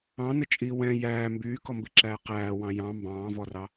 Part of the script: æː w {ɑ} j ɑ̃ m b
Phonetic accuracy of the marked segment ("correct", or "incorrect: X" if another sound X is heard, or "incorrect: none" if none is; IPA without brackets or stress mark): incorrect: ɑ̃